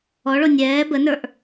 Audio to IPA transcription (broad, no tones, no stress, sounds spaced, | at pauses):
ɔ ɭ o nʲ ɛː b ə n ə˞ ʔ